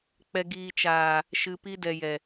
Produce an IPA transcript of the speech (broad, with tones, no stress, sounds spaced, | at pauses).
k͡p ɛ˨ ɡ iː˨ t͡ʃ aː˨ | ʃ ɨ˨ p i˧ d ɛ˨ j ɛ˨